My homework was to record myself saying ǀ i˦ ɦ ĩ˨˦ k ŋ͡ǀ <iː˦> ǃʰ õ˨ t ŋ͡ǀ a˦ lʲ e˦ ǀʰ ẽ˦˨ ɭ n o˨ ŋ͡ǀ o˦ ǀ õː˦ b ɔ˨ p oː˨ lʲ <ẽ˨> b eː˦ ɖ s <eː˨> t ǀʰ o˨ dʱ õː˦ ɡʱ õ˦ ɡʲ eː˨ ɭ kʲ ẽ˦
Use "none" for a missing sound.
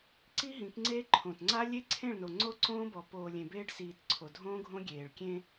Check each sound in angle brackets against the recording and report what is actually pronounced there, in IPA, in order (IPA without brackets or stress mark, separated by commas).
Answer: eː˦, ẽ˨, iː˨